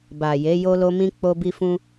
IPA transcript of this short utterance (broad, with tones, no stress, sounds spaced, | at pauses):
b a˨ j e˨˦ j o˧ l o˧ m ĩ˧ k͡p o˦ b i˦ f ũ˦